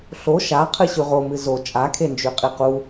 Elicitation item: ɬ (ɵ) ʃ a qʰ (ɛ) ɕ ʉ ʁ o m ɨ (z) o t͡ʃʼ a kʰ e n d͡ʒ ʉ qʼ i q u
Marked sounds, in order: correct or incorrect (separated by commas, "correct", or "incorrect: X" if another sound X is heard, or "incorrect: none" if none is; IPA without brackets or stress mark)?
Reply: incorrect: o, incorrect: ɨ, correct